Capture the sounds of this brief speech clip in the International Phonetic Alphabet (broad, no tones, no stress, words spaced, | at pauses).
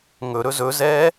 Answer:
ŋɵɾɵ zɵzɛː